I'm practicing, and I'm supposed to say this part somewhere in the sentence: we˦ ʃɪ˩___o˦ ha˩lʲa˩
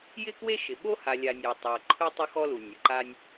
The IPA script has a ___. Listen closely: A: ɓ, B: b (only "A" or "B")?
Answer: A